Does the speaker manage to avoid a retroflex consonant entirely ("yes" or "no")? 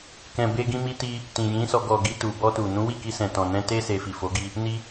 yes